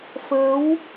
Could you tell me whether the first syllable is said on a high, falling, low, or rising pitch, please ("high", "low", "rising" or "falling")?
rising